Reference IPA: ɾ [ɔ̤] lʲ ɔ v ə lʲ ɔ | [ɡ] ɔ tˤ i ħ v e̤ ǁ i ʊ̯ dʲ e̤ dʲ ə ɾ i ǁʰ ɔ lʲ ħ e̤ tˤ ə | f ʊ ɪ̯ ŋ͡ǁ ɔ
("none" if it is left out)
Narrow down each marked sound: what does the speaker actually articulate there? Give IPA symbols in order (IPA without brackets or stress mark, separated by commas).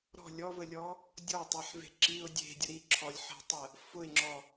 ɔ̤, dʲ